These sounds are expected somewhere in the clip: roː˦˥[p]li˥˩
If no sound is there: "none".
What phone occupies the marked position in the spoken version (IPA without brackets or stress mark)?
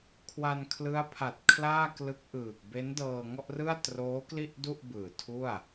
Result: k